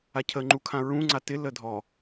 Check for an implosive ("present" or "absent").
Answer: absent